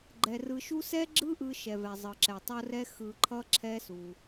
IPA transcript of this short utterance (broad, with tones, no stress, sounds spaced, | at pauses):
ɡ͡ǃ ɛ˨ r ɯ˧ ʃ u˦ s ɛ˦ ɡ͡ǁ ɯ˦ ʔ ɯ˧ ʃ ɛ˨ v ɛ˨ zˤ ɯ˨ ǁ ɛ˨ tˤ o˦ r ɛ˦ x ɯ˧ ǃʰ ʌ˦ ǁʰ ɛ˦ s u˧